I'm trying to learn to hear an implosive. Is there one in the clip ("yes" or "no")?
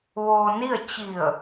no